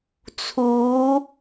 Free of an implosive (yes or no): yes